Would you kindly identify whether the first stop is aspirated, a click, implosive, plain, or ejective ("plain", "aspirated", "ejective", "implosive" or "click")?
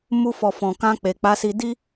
plain